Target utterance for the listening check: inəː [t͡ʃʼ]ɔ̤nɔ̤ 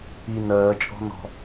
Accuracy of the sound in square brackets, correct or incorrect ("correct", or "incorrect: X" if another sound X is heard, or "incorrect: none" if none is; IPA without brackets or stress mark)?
correct